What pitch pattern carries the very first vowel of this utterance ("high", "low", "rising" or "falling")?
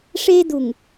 high